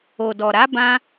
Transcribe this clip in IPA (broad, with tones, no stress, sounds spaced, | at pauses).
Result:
o˨ d ɔ˨ ɾ a˨˦ b ã˧